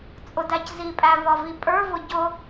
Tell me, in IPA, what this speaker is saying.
t͡sʼ ʊ d æ c z i pʼ æ v ɒ v i pʼ ə˞ v ʊ ɟ ʊ

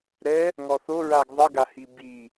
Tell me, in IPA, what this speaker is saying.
ɾ ɛ | ŋ ɔ θ o ɹ a ɡ ðˤ ɘ ɡ a h i b i

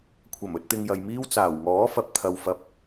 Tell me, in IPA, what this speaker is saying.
kʷʰ ɐ˨˩ m ɵ˧ t̚ t̪ ɪ˧ ŋ j ɐ˨ j m iː˥ w t͡s aː˨˩ w ŋ ɔː˨˥ f ɐ˨ p̚ t̪ʰ ɐ˨ w f ɐ˨˥ p̚

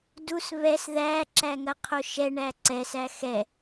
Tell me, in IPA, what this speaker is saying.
d u s β ɛ s ð æ ǁ æ ŋ ɐ qʰ o ʃ ɛ ɳ æ ǀ ɛ s æ x ɛ

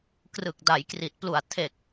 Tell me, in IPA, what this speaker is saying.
k r ɯ˨˩ k̚ d a˩˦ j k r i˨˩ t̚ p l u˨˩ a̯ tʰ e˨˩ k̚

